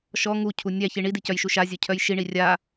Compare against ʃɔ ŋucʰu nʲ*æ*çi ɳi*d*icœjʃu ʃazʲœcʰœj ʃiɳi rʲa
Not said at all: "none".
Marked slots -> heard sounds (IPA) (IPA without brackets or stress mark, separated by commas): æ, d